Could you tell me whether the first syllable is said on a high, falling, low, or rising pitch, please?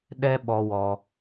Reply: high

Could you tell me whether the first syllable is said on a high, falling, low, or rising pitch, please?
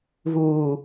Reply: low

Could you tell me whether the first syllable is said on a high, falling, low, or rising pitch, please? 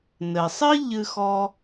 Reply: low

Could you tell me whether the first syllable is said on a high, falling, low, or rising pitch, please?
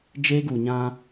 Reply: high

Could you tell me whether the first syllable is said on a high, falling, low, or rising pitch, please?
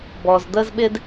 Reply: low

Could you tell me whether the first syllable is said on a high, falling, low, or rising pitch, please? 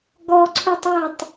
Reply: high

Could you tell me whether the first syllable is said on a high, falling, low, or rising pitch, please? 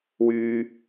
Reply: high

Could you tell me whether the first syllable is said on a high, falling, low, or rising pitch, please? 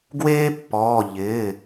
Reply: high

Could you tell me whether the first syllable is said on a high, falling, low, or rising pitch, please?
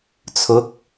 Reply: rising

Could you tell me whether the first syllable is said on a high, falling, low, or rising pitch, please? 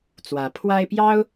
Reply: rising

